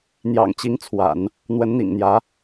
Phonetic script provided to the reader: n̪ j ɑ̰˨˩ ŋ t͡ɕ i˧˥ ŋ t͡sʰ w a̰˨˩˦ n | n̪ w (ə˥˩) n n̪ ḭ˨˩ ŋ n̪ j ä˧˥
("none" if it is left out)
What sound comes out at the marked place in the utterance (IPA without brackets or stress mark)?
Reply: ə˧˥